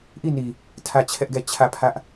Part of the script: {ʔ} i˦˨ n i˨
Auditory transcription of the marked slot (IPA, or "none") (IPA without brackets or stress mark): ʔ